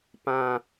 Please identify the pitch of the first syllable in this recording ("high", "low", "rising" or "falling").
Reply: falling